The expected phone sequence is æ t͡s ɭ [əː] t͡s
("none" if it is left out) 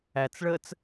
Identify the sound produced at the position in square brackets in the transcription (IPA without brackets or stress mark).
əː